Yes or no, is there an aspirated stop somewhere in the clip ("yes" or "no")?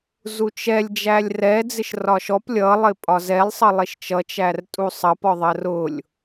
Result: no